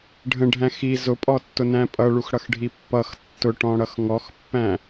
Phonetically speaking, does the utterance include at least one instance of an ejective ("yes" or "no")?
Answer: yes